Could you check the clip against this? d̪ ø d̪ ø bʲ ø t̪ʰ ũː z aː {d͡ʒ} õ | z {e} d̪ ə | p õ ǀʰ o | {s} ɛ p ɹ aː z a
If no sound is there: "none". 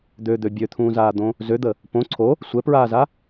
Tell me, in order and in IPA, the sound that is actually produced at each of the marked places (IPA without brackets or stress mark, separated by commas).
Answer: d̪, ø, sʷ